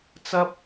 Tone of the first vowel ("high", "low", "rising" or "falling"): high